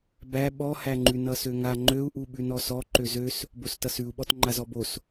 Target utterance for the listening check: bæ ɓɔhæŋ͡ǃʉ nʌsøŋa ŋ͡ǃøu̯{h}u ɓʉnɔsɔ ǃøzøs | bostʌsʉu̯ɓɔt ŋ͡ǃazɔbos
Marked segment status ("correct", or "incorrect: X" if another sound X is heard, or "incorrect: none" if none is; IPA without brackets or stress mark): incorrect: ʔ